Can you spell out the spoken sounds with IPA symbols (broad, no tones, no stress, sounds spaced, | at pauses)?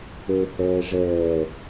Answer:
ɵː h ɛː ʐ ɛː